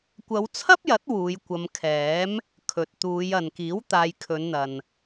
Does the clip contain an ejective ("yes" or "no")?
no